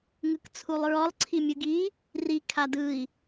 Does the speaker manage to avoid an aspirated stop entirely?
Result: no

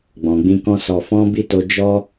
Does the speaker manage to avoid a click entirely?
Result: yes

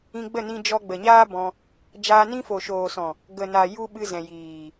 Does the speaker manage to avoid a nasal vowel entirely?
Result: no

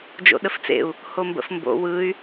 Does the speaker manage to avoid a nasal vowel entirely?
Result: yes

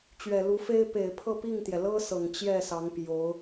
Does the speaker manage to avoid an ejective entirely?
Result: yes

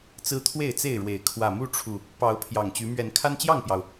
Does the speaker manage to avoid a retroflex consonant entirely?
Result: no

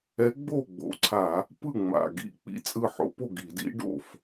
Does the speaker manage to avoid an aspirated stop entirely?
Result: no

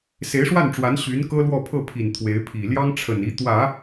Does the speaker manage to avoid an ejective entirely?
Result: yes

